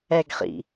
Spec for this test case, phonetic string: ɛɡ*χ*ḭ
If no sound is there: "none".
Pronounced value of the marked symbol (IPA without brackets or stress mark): χ